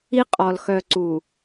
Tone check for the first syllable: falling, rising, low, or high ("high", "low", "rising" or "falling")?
high